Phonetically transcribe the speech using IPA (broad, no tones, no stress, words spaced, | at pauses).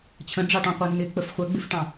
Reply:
t͡ɕʰə̃ɖ͡ʐɑʈɔ̃qʷə˞ nɪk͡pəf χʷəɡ͡bɪfʈɑ̃